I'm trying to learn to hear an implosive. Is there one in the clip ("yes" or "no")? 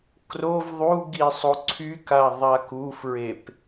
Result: no